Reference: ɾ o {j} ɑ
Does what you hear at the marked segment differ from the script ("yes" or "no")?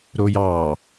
no